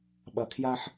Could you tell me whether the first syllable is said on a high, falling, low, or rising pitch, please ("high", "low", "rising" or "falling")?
low